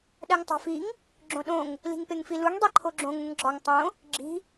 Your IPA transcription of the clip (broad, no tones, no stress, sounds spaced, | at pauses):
ɗ æ ŋ tˤ æ̤ f i ŋ | ɡ͡ǁ õ ɗ õ ŋ | l i̤ ŋ p e ŋ f i l u ŋ dˤ i ǃʰ o ɡ͡ǁ õ ŋ ũ ŋ ɡ͡ǁ ɒ ŋ tˤ õ | ɡ͡ǁ i̤